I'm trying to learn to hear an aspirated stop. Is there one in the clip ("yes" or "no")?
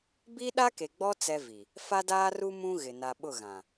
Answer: no